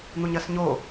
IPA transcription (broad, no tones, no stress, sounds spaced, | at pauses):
n̪ u ɲ ɐ s ɲ o